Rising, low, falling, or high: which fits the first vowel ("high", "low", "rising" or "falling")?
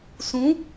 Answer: rising